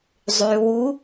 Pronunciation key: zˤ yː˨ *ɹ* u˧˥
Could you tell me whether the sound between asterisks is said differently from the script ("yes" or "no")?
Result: yes